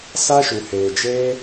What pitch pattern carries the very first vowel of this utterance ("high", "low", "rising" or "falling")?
high